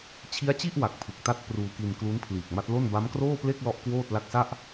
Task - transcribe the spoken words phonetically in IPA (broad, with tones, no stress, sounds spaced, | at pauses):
t͡ɕʰ i˦˥ a̯ t͡ɕ i˥˩ ʔ w a˨˩ k̚ pʰ ɯ˨˩ k̚ t a˥˩ t̚ p r uː˧ k i˧ n k l u˦˥ n pʰ l iː˨˩ k̚ m a˦˥ t̚ l o˥˩ n b a˦˥ m k r oː˥˩ p l e˥˩ k̚ l ɔ˦˥ ʔ k w oː˥˩ t̚ l a˦˥ k̚ s a˥˩ ʔ